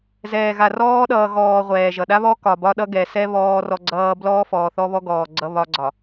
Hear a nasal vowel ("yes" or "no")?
no